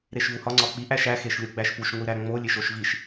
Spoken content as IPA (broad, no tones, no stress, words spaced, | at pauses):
ɾeʃvuhɒ ŋ͡ǀɒk͡pi ʔæʃæ xeʃlʲoɡ͡bæʃpuʃ ŋʷiɾæŋ͡mo lʲeʃoʃviʃ